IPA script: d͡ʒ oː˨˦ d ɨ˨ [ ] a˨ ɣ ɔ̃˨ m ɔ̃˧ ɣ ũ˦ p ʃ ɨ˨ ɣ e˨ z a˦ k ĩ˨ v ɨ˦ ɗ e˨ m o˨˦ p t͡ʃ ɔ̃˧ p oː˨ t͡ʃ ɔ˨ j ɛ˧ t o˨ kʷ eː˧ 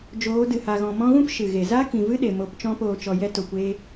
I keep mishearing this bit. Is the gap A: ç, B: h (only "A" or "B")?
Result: B